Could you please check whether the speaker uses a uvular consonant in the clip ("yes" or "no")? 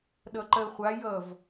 yes